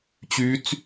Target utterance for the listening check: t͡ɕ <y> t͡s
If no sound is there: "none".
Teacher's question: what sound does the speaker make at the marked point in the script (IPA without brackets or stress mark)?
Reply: y